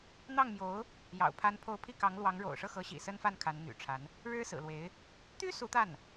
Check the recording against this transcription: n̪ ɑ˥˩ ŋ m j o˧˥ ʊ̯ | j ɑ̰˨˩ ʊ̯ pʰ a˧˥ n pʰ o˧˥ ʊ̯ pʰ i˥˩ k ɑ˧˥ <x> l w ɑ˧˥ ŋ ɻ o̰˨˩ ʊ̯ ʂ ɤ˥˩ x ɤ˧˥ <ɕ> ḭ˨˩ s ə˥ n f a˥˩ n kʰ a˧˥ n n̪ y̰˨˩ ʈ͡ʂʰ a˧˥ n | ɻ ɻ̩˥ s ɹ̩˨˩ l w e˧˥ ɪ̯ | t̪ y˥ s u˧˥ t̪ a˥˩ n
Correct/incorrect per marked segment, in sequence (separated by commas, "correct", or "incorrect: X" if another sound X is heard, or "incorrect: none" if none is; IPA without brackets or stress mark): incorrect: ŋ, correct